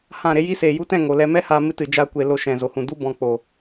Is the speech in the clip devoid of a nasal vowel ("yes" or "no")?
no